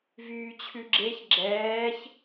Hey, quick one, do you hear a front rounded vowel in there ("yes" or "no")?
yes